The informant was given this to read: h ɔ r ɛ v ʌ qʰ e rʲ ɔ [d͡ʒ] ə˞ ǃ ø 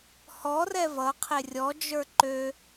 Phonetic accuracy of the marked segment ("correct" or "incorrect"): correct